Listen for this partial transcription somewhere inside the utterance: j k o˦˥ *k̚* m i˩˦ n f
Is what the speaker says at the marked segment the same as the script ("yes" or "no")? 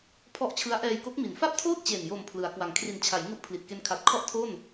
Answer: yes